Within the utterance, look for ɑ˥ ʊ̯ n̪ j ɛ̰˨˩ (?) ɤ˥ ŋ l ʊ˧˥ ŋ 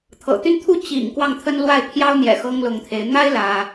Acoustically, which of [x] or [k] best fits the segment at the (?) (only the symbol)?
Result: x